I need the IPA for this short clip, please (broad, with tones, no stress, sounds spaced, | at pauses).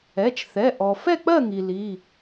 ɛ˩˧˩ t͡ʃ θ ɛ˩˧˩ ʔ ɔ˩ f ɛ˦˨ k͡p ɜ˦˨ ŋ i˩ l i˩˧˩